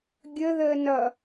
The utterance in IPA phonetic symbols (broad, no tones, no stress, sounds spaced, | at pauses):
ɡʲ ə ð əː n ʌ